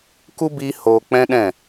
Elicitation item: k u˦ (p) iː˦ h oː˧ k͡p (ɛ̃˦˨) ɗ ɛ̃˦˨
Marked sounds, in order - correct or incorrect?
incorrect: b, incorrect: ɛ̃˦

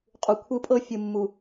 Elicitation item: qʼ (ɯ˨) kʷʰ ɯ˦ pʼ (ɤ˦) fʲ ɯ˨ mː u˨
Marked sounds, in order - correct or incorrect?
incorrect: u˨, correct

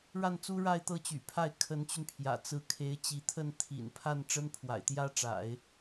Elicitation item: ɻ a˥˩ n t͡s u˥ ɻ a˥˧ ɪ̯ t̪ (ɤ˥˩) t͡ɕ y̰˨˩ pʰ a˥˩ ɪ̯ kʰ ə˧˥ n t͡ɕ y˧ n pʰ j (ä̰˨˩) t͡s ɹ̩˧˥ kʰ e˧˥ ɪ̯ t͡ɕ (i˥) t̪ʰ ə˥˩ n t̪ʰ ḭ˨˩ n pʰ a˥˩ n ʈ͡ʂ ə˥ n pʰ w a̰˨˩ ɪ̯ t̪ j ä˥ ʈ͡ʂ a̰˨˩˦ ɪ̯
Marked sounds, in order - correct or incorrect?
correct, correct, incorrect: i˧˥

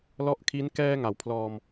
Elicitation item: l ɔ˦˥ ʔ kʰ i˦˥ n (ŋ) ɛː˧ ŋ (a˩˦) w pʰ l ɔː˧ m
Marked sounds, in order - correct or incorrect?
incorrect: k, correct

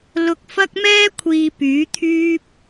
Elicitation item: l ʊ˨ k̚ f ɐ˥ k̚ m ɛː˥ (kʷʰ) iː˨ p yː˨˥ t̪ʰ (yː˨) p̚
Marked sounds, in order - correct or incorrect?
correct, incorrect: yː˥

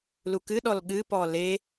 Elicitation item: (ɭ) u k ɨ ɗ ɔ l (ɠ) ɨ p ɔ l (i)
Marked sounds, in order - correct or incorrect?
incorrect: l, correct, incorrect: e

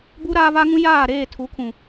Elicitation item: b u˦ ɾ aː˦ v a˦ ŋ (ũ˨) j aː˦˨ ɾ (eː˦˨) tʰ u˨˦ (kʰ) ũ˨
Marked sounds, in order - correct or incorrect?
incorrect: ũ˦, correct, correct

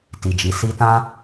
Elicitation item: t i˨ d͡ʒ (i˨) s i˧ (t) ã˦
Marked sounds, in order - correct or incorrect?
correct, correct

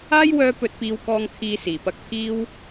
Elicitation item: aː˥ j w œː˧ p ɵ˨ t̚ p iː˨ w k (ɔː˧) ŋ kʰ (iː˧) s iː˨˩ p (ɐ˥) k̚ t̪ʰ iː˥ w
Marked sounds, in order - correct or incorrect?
incorrect: ɔː˨, correct, incorrect: ɐ˧

